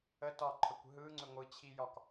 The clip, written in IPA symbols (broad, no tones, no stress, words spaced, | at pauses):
ə tɒǃʰəkʷ ɦɯŋ͡ǀʏ ŋʷɯt͡ɕʰijɒk